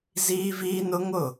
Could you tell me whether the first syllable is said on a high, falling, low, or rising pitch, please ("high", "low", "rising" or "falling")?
high